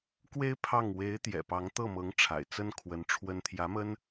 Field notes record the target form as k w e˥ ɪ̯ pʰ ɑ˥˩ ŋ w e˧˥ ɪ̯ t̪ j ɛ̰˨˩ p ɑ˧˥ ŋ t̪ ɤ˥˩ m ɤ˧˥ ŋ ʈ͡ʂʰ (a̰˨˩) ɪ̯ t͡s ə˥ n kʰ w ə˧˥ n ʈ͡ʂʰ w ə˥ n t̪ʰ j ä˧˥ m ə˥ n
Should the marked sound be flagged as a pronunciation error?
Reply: no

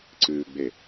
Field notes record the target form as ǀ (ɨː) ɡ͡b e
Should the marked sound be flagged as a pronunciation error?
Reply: no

